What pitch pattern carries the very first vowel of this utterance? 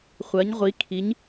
rising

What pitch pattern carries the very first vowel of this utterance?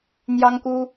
high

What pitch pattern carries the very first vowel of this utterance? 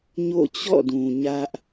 falling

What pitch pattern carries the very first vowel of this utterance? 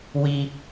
high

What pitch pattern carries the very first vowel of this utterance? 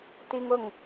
high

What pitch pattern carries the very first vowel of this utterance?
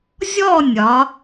falling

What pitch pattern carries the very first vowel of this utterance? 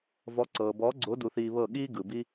rising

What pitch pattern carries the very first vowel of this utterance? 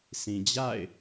low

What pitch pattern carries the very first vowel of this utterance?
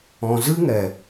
low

